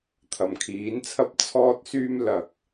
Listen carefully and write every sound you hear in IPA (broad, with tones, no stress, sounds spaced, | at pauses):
t̪ʰ ɐ˨˩ m kʰ iː˨˥ n t͡sʰ ɐ˥ p̚ t͡sʰ ɔː˧ t̚ s yː˧ m l ɐ˨ k̚